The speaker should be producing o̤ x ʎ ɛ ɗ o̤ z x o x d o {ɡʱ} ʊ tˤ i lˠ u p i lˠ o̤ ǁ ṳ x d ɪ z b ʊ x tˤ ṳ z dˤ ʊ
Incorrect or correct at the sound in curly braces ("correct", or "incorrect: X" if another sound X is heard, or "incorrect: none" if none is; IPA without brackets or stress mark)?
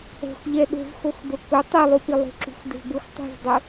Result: incorrect: k